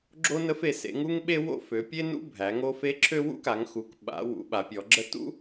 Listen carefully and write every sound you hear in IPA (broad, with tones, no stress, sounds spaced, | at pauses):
ɡ͡ǁ o˦ n ə˦ f e˩˧ s ḛ˩˧ ŋ u˦ ŋ ɓ e˦ w o̰˦ f ø˩˧ pʲ e˦ n ṵ˦ bʱ æ˩˧ ŋ o˦ f e˦ ǁʰ ø˦ w ṵ˦ k a˩˧ ŋ x u˩˧ k ɓ a̰˩˧ w ṵ˩˧ ɓ a˩˧ pʲ ɔ˩˧ ɡ͡ǁ ə˦ t ṵ˦